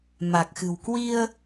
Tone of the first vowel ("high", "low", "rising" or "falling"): low